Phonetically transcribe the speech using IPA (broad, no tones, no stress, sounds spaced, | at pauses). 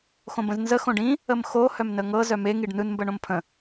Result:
x õ b ə̃ z n z ə x õ ɖ ĩ | ə m x o h œ m n ə ŋ ɤ z œ m e ŋ i ɖ n ɯ n m b ɜ ɳ õ m pʰ ə̃